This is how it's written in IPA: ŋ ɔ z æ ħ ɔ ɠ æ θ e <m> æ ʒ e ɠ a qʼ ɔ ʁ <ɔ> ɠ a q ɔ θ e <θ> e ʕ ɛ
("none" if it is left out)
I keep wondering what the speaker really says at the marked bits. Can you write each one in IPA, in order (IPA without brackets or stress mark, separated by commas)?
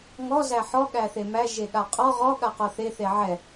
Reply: m, ɔ, θ